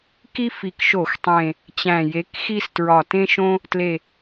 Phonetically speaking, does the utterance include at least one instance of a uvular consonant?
no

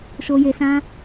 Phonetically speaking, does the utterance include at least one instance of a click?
no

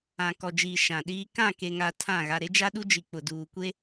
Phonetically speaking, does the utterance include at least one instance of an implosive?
yes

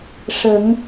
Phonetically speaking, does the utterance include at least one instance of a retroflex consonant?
yes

